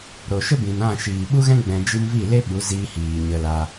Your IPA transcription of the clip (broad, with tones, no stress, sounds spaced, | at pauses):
ɾ o˨ ʃ ə˦ b ĩ˨ n ã˦˨ ʃ iː˨ ɓ u˦ ɣ ɛ̃˦ ɡ͡b ɛ̃˧ d͡ʒ i˧ m v i˦˨ l e˦ ɓ u˨˦ z iː˧ h iː˨ ɲ ə˧ l a˧